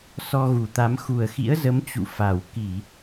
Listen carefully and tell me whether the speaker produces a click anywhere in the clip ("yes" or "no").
no